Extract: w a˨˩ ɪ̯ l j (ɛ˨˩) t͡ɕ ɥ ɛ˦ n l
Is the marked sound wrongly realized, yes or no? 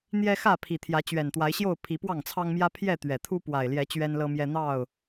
yes